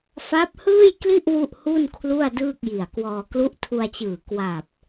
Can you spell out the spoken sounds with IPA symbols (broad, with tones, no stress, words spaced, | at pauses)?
fa˦˥p̚hɯː˥˩jkli˥˩ʔ wu˥˩ʔhu˥˩n kʰlu˥˩a̯dɯː˥˩k̚ji˨˩a̯kwɔː˧ klu˦˥ʔtʰu˧a̯t͡ɕɯː˨˩ kwa˨˩p̚